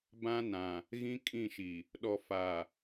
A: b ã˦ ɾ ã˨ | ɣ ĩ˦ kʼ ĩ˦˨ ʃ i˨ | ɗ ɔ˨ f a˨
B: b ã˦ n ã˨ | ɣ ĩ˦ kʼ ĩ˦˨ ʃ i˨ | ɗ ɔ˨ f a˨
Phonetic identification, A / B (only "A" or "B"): B